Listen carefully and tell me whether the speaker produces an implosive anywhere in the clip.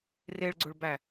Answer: no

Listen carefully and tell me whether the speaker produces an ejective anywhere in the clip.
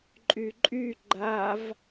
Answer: yes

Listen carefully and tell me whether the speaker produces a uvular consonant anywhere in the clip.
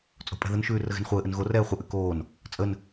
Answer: yes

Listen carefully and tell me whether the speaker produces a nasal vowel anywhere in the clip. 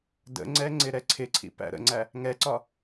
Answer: no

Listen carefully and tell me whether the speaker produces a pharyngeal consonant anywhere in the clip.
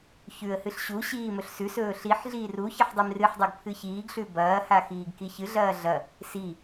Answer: yes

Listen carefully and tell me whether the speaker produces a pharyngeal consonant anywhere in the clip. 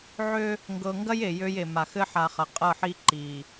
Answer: yes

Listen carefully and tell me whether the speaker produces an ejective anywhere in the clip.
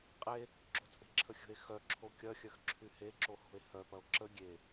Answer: yes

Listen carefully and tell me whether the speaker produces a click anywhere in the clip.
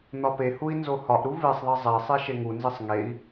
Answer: no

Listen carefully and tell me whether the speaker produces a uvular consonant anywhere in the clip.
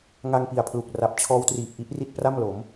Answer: no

